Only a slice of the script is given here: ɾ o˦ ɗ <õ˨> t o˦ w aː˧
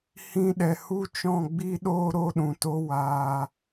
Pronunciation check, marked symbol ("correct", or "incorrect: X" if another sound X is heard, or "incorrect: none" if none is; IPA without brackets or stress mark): incorrect: ũ˨